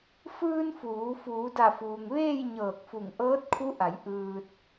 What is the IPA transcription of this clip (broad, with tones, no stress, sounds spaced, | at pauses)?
f ɯː˧ n f uː˩˧ f uː˩˧ d a˧˩ f uː˩ ŋ ʋ eː˥˨ j ɲ ɤː˧˩ k̚ f u˧˩ ŋ ʔ ɤː˧˥ t̚ kʰ u˧˥ ʔ a˩˧ j ʔ ɯː˧ t̚